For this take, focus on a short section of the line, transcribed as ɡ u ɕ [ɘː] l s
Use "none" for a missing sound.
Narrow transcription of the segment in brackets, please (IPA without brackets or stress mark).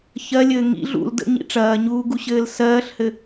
ɘː